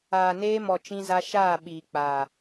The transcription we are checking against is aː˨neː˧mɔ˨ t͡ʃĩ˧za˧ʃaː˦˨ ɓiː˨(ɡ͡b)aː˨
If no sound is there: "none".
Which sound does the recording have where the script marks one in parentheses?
k͡p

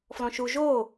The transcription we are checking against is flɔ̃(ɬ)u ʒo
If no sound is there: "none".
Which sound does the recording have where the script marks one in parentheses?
ʃ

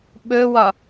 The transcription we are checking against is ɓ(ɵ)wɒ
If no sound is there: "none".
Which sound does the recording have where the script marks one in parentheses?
ɵ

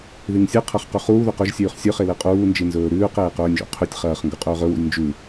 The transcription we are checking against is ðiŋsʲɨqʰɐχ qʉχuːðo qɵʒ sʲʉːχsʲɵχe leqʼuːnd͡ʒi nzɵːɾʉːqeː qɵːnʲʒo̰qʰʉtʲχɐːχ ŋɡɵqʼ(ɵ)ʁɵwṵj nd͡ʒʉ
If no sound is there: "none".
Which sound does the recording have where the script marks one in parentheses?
ɵː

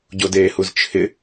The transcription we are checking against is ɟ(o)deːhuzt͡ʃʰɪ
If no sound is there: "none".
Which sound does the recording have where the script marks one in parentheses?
o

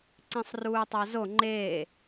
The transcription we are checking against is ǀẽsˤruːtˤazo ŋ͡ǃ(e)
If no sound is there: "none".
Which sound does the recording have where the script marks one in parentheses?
eː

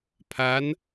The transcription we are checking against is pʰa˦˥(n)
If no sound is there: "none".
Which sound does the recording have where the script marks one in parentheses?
n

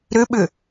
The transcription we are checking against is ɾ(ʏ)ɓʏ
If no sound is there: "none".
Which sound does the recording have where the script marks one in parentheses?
ʏ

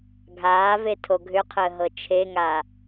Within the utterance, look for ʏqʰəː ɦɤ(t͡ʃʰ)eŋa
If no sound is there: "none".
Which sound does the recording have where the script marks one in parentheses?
t͡ʃʰ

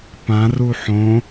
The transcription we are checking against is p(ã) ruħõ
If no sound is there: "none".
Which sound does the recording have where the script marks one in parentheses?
ã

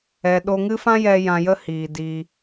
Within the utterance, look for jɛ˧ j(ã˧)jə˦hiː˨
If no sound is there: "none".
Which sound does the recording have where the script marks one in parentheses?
ã˧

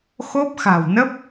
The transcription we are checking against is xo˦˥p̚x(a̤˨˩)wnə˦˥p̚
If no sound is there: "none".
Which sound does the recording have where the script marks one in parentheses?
a̤˨˩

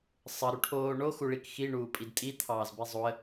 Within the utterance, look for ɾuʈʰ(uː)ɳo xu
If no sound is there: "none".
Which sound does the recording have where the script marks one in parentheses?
oː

